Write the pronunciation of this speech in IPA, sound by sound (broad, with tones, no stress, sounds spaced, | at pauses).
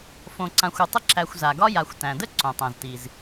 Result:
f õ˨ ǀ ã˨ xʷ ʊ˨ tˤ ə˦ ǁ æ˨ xʷ z a˩ ɡ ɒ˦ j a˨ xʷ t æ̃˩ d ə˥ ǀ õ˩ tˤ æ̃˩ z t i˩ z